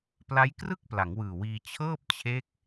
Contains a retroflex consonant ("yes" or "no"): no